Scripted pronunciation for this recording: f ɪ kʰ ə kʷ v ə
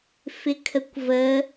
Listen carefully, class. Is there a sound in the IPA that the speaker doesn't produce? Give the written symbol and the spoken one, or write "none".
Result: none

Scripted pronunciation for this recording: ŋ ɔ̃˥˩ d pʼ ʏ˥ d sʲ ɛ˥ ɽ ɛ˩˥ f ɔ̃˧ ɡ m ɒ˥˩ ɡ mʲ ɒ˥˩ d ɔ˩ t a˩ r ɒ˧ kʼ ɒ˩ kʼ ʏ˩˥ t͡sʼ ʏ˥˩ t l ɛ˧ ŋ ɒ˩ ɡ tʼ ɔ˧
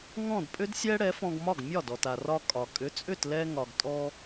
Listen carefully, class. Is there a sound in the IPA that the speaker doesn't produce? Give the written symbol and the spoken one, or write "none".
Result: none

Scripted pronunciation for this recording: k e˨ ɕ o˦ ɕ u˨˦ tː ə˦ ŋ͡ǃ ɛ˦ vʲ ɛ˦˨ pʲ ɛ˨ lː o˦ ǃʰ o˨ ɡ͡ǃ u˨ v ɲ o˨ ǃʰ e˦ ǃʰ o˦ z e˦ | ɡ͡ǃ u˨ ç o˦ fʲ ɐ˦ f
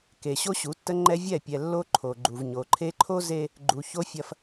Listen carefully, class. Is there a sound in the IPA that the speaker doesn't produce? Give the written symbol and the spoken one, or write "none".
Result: none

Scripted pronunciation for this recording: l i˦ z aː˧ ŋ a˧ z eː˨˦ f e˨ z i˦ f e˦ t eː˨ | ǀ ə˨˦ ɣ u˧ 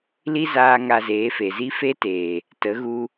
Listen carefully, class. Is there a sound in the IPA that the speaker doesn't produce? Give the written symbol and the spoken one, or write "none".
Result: ǀ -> t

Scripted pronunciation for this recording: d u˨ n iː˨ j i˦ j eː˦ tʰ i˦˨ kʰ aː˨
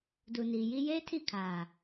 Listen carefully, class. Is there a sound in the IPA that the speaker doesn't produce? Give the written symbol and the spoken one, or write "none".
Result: none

